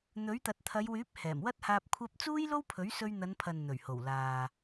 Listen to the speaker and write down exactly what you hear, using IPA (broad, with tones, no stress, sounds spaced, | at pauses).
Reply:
n̪ ɵ˨˥ ɥ t̪ ɐ˨ t̚ t̪ʰ ɐ˨˧ j w yː˨˥ p̚ h ɛː˨˩ m w ɐ˥ t̚ h aː˧ p̚ kʷʰ ɐ˥ p̚ t͡s uː˥ j l o˥ w pʰ ɵ˨˥ ɥ s ɵ˧ ɥ n̪ ɐ˨˧ n pʰ ɐ˨ n n̪ ɵ˨˩ ɥ h o˨˩ w l aː˨